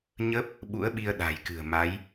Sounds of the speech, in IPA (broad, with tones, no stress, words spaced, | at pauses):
ɲə˦˥p̚ | ɓṵ˧˥ə̯ɓi˧ə̯ ɗa̤˨˩jkɨ̤˨˩ə̯ma˨˦j